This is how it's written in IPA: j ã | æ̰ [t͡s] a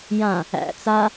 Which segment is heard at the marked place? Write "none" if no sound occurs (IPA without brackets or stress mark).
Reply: t͡s